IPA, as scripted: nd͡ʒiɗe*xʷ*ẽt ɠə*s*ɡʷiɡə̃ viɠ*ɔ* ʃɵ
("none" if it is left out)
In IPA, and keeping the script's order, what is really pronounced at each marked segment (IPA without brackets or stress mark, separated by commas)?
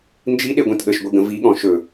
ɡʷ, ʃ, ɔ̃